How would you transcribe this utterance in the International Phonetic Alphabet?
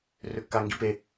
r ø kː a ŋ ɡ i p e

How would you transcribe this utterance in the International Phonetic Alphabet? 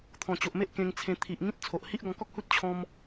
t̪ʰ ɔ̃˨˩ t͡ɕ o˨ ʔ m e˦ ʔ k ẽ˧ ŋ t͡sʰ ẽ˧ t̪ʰ i˨ ʔ ŋ ĩ˦ t̚ t͡sʰ o˨ ʔ h i˦ ʔ ɡ ɔ̃˧ k ɔ˦ k̚ h u˦ t̚ t͡ɕʰ ɔ̃˧ m

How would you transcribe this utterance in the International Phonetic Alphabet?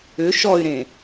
ʏ ʃ ɔ y̯ ɾ ẽ

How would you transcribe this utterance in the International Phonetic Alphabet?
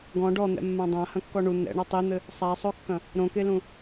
ɡ ɔ̃ ɖ ɔ n̪ ɛ̰ mː ã dˤ ã h ɐ̃ kː ɔ ɳ u n̪ ɛ̰ ɳ ɔ tˤ i n̪ ɘ | sˤ a sˤ o kː ɐ̃ | ɾ õ k e l ũ

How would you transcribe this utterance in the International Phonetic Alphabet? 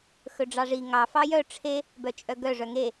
x ɵ ɖ͡ʐ ɑ ʐ i ŋ ɑ f ɑ j œ ʈ͡ʂʰ e | b œ t͡ʃʼ œ ɡ œ ʐ œ ŋ e

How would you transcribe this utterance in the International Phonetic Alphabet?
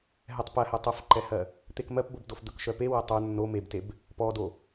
ɦ ɛ tˤ p ɜ h ɛ tˤ ə f ǃ ɛ h ɜ | t̪ e k m ɜ p b o b d o f d̪ ɵ k ʃ œ p e w ɛ tˤ ə˞ nː o m e b t e b | p ɔ d o

